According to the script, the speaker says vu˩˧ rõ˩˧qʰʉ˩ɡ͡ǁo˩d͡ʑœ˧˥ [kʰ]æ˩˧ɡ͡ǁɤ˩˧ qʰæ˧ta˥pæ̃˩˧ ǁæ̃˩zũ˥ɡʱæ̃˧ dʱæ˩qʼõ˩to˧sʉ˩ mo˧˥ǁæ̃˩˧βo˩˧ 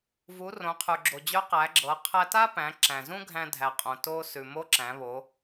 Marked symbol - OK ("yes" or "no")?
no